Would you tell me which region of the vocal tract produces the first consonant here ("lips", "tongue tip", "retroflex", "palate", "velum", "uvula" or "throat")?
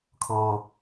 velum